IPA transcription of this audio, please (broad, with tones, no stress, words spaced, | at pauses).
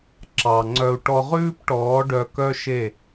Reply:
ǁɑ˨ŋ͡ǀœ˧u̯ ʈɔ˧ʁʉː˦pʈɔː˨˦ ɖœ˧kœ˦ʃe˦˨